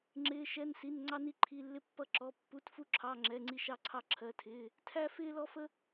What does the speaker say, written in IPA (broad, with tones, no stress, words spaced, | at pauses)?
ŋ͡ǁɪː˧˥˧ʃɛ˧˥˧nsi˧˥˧n ŋ͡ǀɑ˥ni˥ǃʰi˧˥˧lːɪ˥ pːʌ˥ǁɔ˧˥˧ pːu˧˥˧tfu˥ǁʰɑ˧˥˧ ŋ͡ǁɛ˧˥˧ŋ͡ǀi˥ ʃɑ˥ǀʰɑ˥ǁʰɜ˧˥˧tʰɪː˧˥˧ | tʰæ˥ fɪː˥lɔ˥fə˥